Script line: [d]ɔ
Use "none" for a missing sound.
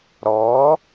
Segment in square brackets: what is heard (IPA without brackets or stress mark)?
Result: ɾ